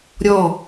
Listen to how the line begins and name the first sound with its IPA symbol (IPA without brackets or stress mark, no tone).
ɾʲ